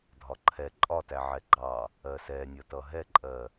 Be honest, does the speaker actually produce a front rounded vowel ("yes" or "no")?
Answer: no